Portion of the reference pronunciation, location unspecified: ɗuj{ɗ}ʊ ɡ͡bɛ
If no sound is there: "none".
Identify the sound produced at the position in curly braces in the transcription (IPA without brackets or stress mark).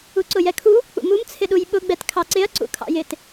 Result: ɓ